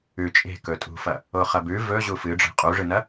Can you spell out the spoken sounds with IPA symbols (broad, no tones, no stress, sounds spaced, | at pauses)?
ʉ t͡ʃʼ e̤ k ɵ tʼ ṳ f ɐ | o χ ɐ b ʉ v ɵ ʑ u f ɨ ɖ͡ʐ e̤ qʼ u ʐ ɨ n ɐ